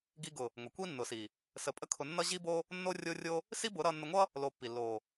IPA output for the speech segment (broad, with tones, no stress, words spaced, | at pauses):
ɡi˧ ɡʊ˨ | ŋʷə˨ kʷi˦nːʊ˨si˨ | sə˨˦pʼə˦ kʰʊ˧ nːʌ˦ ʑi˦bo˦ | nːo˦rʲo˦rʲo˦ | si˦bʊ˨˦ɾʌ˧ nːə˧ŋʷʌ˦ | lo˧pːi˨ lːo˨